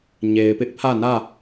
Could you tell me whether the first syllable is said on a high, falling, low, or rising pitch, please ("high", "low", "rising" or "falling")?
low